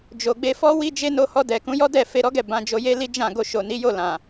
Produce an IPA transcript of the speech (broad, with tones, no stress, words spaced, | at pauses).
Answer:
d͡ʒo˨ɡ͡be˧fɔ˦ wi˦d͡ʒe˦no˧ hɔ˧dɛ˨ kũ˨˦jɔ˦dɛ˦˨ fe˧ɾɔ˦ɡɛ˦˨ bã˨˦d͡ʒo˧ je˦li˦ d͡ʒã˦˨ ɡo˧ʃo˨ni˨˦jo˦˨ lã˨